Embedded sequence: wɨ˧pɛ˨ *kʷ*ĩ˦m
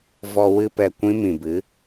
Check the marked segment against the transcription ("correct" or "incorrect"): correct